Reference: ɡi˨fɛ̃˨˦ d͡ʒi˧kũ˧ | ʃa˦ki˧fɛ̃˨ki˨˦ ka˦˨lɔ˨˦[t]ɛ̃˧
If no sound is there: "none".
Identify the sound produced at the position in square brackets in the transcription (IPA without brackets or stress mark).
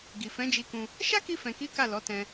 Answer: t